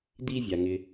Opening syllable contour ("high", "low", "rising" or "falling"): high